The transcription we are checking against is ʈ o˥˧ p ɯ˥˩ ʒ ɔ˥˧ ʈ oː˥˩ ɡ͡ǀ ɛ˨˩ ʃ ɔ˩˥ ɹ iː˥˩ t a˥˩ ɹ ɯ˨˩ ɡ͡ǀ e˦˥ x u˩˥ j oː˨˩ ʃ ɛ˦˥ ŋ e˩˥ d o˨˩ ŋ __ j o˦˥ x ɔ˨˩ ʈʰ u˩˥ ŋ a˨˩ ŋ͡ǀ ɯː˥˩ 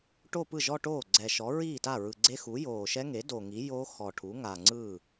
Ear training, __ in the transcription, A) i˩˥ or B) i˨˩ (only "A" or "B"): A